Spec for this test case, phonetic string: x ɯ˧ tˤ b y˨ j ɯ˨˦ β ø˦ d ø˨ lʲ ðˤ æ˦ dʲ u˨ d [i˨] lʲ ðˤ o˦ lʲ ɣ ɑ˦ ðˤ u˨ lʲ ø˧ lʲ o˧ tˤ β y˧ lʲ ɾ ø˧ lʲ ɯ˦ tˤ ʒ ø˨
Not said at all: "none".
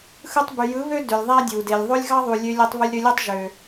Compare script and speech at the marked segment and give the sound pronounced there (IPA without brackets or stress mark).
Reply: e˨